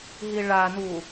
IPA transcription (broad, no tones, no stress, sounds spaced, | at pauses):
ɦ i ɭ a n u